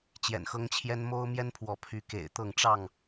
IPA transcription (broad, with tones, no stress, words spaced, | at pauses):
t͡ɕjɛ̰˨˩nxɤ˦ŋt͡ɕʰjɛ˦n mo˦ʊ̯ mjɛ˦npʰwɔ˨˦ pʰy˨˦kḛ˨˩ɪ̯t̪ɤ˥˨ŋ ʈ͡ʂɑ˥˨ŋ